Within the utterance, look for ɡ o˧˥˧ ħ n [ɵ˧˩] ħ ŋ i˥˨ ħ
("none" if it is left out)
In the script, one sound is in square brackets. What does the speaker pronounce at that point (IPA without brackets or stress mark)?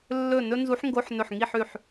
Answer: ɵ˧˩